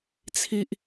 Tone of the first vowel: high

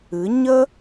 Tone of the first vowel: rising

